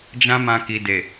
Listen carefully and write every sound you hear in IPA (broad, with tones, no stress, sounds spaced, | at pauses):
d͡ʒ ã˦ m ã˧ k i˨ d e˨